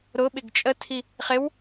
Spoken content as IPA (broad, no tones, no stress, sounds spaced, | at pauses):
ɾ ʊ ɓ ɪ ɡ t͡ʃʼ ə tʰ i | χ ɪ w